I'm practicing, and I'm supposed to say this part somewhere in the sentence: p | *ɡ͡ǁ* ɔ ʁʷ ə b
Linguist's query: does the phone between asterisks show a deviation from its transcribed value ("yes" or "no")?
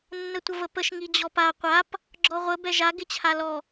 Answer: no